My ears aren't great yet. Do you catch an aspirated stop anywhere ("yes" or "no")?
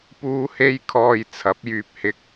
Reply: yes